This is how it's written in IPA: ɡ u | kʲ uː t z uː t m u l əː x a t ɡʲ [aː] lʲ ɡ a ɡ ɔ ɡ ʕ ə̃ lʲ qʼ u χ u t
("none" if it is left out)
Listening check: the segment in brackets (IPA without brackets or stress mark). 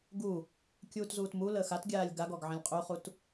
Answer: aː